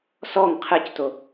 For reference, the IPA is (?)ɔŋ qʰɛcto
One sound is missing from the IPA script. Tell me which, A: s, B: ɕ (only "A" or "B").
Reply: A